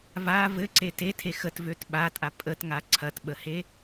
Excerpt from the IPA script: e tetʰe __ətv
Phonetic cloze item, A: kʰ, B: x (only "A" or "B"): B